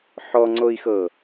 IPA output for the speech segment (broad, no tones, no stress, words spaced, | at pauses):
ħɔŋ͡ǀoi̯xɤ